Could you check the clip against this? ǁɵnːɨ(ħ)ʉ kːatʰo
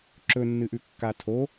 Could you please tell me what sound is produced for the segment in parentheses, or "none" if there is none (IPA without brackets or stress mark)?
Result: ʔ